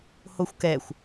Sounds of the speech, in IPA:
h o xʷ k ɛ xʷ

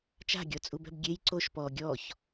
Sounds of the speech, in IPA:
t͡ʃ a̤ ɡʲ ɔ t͡sʼ u b ɛ̤ b ɡʲ e j ǀ o ʃ p ɔ ɡʲ ɔ ç

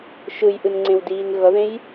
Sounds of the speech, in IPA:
ʃ ɯ j ʔ ɯ n ŋ͡ǀ ẽ w d iː n ɣ ʌ ð ẽ j

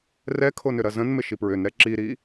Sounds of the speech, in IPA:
r ɛ kʰ o n ʏ ɾ ɐ z ə̃ n m ɪ ʃ i p ɹ ʏ n ɾ ɛ ǁ i ɾ i

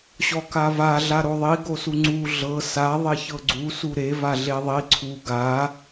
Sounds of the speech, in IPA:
ɕ ɔ k a v a ɮ a ɾ o ðˤ i ɡ o s u ŋ͡ǀ u ɮ ɤ s a ðˤ e ç ɤ ɡ͡ǀ u s u ɾ e v a ɮ e ðˤ i ǀʰ u ɡ a

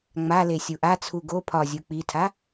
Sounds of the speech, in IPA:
ŋ͡m a l e sʲ u ʔ a t͡sʰ u ɡ o pʰ ɒ zʲ u k͡p i tʰ a

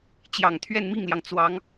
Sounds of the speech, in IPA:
t͡ɕ j ɑ˨˩ ŋ t̪ʰ ɥ ɛ˥˧ n m i˥˩ ŋ l j ɑ˩ ŋ t͡s w ɑ˧˥ ŋ

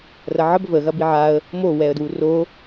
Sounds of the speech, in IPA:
r ɐ ʕ ə b v ə ɣ ɐ b i ʕ a ə̯ | m o w ɛ ə̯ d w u r o

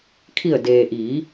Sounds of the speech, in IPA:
kʰ i˧˩ ə̯ d eː˩ ʔ i˩˧

